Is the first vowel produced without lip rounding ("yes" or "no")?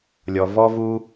no